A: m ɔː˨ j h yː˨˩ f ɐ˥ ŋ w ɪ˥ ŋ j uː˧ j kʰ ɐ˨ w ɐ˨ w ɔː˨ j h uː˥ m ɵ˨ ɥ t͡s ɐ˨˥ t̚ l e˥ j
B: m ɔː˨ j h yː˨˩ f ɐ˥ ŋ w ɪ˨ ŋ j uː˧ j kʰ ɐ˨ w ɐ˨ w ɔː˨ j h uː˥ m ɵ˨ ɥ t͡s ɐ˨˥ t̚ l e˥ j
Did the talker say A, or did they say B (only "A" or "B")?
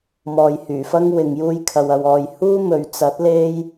B